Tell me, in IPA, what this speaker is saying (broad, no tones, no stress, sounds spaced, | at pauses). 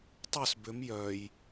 tˤ œ s b ʏ m j œ j